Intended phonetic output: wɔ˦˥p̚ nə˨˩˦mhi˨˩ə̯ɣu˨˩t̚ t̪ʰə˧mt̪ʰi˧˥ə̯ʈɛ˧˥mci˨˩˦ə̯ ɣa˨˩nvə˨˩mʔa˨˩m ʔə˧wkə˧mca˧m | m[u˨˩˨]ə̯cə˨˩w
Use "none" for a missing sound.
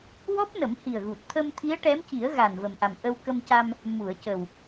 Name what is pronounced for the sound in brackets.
u˨˩˨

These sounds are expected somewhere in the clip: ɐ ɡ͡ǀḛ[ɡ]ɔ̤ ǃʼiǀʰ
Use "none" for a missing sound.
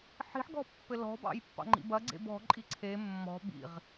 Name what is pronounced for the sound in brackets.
b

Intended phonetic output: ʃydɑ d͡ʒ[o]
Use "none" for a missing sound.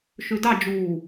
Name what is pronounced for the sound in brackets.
u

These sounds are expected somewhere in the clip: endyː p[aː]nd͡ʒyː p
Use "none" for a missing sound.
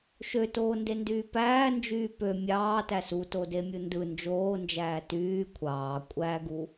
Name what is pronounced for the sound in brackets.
æː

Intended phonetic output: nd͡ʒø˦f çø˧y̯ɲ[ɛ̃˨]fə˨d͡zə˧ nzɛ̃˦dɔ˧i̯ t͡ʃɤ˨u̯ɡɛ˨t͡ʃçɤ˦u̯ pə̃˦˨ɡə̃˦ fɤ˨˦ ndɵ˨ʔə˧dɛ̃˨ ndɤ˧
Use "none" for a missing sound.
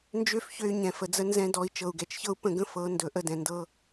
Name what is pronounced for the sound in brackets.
ɛ̃˨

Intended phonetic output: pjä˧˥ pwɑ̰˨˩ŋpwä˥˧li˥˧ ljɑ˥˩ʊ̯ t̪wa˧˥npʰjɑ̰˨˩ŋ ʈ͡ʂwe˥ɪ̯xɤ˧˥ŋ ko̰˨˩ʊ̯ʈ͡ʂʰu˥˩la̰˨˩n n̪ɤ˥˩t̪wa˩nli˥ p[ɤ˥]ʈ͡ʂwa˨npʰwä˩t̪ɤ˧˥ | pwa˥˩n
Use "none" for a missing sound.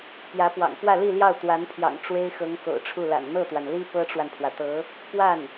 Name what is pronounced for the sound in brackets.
ɤ˥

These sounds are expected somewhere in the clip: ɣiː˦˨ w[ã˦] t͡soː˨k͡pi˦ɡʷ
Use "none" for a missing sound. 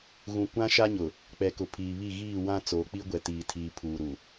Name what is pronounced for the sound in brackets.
ã˦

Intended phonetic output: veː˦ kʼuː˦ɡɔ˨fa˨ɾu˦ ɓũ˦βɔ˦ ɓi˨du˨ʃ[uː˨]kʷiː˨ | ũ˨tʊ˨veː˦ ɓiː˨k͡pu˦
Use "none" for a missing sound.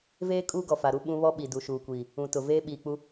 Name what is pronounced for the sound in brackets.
uː˨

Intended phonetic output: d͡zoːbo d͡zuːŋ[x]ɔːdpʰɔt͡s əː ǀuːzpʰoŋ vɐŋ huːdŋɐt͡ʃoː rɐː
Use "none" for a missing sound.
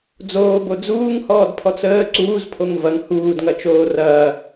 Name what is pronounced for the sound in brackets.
h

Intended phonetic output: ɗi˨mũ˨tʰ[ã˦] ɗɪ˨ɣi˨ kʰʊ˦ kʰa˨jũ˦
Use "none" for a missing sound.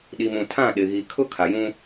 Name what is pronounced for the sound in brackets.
ã˦˨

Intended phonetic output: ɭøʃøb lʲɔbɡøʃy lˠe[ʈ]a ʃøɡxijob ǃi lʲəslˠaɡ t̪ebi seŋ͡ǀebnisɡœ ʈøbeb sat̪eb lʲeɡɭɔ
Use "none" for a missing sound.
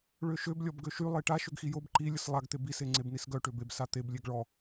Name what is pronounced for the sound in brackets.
ʈ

